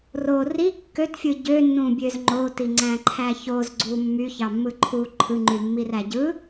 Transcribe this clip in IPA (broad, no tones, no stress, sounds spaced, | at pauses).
r o r i kː ø t fʲ ɯ ɟ ø nː ũ bʲ ø z ŋ͡ǃ o t i ŋ͡ǀ æ̃ ǃʰ æ ç o z ɡ͡ǀ u mː y ç ɑ mː ɯ ǃʰ u ǃʰ ɯ ŋ͡ǃ y mː i r æ ɟ ɯ